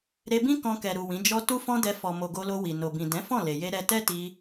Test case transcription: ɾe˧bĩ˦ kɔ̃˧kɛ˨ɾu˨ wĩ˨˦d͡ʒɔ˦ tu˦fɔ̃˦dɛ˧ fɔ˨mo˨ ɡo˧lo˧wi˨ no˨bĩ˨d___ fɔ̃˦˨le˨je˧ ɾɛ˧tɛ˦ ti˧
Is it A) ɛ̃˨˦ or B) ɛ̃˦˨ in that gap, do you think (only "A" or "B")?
A